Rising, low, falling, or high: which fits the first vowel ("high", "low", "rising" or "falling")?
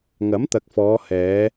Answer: rising